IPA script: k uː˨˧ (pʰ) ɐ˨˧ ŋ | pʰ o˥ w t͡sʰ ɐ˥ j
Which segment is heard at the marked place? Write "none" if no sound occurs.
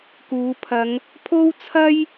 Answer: pʰ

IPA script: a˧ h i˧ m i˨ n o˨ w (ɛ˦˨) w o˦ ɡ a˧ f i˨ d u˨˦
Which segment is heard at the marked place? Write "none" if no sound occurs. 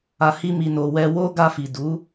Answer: ɛ˧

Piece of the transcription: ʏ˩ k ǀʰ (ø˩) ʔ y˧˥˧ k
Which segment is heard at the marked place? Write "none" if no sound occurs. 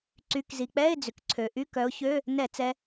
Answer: ø˩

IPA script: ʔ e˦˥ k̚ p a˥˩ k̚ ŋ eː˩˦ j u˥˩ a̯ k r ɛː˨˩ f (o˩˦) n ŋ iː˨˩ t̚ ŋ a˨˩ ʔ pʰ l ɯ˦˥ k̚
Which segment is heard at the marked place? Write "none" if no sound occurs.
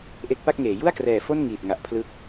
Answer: o˥˩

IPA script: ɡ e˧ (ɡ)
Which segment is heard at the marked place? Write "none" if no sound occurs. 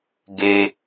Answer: none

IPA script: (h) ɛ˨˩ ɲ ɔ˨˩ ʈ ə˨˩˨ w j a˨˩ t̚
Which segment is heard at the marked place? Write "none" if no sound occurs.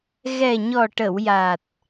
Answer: ɣ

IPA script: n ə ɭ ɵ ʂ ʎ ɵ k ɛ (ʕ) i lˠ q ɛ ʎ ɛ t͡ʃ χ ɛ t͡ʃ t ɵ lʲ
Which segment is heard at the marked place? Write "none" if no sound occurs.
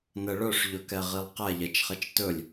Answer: ʁ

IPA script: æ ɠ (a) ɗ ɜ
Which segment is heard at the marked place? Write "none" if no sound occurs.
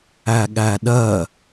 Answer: æ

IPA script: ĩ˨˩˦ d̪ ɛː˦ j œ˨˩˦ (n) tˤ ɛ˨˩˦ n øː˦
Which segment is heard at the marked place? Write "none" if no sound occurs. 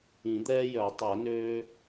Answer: none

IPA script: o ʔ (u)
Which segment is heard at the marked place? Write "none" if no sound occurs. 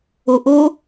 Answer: o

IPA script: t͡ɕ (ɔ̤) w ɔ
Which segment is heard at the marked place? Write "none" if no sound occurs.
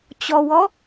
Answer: ɔ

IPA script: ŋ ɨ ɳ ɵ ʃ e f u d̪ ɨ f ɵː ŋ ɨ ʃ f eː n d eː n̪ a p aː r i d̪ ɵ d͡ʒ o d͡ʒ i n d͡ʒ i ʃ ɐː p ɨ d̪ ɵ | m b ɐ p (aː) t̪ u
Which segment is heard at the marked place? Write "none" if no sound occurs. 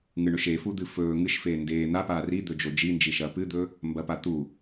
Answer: a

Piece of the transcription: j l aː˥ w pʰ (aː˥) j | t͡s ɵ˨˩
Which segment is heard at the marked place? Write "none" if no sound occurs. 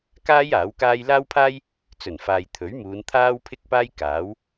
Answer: aː˥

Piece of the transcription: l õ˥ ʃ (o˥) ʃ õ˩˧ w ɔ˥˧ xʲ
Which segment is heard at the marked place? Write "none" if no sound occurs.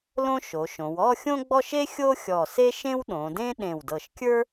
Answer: o˩˧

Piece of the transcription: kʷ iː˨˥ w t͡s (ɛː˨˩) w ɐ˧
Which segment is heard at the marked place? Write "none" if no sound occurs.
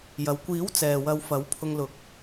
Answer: ɛː˨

